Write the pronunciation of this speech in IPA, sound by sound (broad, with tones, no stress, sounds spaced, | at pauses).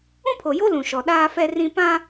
ũ˦ pʰ o˨ j o˦ l ũ˨ ʃ ɔ˨ ɗ aː˦ f ɛ˦ r ĩ˦ p ã˦